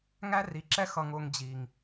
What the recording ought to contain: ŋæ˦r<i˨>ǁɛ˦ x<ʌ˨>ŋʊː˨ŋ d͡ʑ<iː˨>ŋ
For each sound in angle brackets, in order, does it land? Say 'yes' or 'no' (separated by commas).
yes, yes, yes